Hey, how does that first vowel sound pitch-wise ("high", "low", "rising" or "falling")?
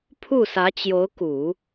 falling